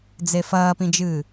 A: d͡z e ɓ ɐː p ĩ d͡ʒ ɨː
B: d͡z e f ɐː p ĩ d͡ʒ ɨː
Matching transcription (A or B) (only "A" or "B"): B